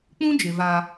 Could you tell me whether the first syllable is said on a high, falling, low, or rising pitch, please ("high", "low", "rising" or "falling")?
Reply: high